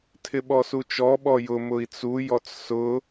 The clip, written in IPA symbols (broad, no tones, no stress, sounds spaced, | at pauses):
tʰ ɪ ɓ ɔ s u t͡ʃ ɔ ɓ ɔ j ʊ m ʊ i̯ t͡s u j ɔ t͡s s ʊ